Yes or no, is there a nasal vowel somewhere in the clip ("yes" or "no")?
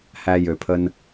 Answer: no